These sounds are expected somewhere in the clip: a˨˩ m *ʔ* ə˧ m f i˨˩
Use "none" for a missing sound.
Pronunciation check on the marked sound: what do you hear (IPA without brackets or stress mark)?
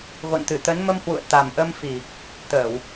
ʔ